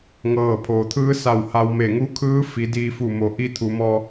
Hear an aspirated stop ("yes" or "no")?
yes